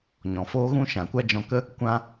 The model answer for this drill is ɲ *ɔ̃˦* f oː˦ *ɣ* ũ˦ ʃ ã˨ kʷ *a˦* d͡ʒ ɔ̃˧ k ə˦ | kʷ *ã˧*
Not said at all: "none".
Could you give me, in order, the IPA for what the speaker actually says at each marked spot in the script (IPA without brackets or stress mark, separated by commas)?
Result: ɔ̃˨, ɣ, a˦, ã˦